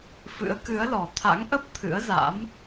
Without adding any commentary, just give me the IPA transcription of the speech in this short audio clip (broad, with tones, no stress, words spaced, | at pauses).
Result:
fɨ̰˧˥ə̯kɨ˨˦ə̯lɔ˨˩ t̪ʰa̰˧˥ŋ ʔə˦˥p̚ t̪ʰɨ̰˧˥ə̯za̰˧˥m